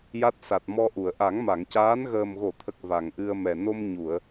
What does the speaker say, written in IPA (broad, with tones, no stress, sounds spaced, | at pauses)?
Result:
j a˦˥ t̚ s a˨˩ t̚ m ɔ˧ ʔ u˨˩˨ ə̯ ʔ a˨˩˦ ŋ m a˨˩˨ ŋ c aː˧˥ n ɣ əː˨˩ m ɣ o˨˩˨ t̪ʰ ə˨˩ k̚ v a˨˩ ŋ ʔ ɨ˧ ə̯ m ɛ˨˩ n o˧ m ɲ u˨˩˨ ə̯